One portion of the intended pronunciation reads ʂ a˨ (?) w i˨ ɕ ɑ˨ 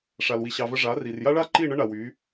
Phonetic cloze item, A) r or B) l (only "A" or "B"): B